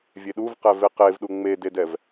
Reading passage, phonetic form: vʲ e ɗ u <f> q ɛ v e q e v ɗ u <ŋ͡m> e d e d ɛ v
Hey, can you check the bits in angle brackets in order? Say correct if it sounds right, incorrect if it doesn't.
incorrect, correct

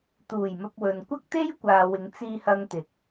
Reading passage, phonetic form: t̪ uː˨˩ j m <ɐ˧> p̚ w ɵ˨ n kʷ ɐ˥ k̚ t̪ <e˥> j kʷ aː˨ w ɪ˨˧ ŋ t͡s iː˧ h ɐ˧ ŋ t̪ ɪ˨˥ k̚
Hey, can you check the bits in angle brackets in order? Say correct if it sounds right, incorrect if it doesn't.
correct, correct

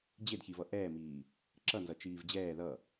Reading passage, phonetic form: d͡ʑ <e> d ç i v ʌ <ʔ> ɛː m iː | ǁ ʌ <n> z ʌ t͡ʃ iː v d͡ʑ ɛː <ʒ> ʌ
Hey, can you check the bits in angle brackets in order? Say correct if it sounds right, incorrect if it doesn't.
correct, correct, correct, incorrect

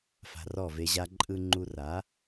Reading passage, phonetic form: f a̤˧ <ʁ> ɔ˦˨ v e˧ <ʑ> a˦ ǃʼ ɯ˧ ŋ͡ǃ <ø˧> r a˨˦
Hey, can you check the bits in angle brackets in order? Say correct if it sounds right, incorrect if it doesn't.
incorrect, correct, incorrect

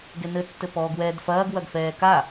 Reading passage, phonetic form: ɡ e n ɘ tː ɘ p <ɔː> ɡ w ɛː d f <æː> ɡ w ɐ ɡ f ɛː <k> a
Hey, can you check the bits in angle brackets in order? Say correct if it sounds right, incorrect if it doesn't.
correct, incorrect, correct

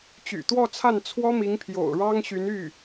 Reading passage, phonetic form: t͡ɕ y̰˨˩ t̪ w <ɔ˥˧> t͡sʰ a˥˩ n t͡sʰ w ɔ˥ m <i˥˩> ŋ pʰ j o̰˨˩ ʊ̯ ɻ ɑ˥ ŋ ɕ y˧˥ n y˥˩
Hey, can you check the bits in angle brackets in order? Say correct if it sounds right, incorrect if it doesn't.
correct, incorrect

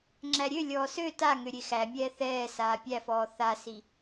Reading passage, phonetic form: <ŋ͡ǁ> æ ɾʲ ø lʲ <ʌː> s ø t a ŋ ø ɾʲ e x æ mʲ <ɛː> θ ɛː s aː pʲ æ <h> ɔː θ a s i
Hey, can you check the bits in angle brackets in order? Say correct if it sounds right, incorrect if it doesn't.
correct, incorrect, correct, incorrect

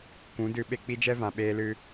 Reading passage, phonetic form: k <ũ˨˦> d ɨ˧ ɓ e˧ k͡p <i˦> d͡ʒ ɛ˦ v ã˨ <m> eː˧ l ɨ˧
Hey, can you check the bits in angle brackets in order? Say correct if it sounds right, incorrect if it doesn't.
correct, correct, incorrect

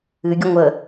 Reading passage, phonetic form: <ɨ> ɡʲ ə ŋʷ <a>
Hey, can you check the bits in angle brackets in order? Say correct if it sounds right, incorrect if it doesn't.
correct, incorrect

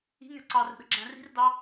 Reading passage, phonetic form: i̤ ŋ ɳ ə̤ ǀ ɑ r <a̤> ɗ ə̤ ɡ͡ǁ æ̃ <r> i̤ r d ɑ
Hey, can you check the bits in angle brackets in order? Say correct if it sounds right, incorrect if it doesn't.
incorrect, correct

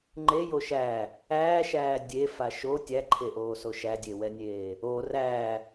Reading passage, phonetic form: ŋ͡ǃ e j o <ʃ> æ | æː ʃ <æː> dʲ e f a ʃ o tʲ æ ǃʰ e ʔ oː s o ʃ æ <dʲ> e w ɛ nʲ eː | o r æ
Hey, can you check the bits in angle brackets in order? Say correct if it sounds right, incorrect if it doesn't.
correct, correct, correct

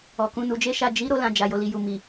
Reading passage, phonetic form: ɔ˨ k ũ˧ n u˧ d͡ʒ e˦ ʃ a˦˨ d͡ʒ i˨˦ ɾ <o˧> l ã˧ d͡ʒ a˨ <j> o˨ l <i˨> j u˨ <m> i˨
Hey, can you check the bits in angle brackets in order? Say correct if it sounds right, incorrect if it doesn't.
incorrect, correct, correct, correct

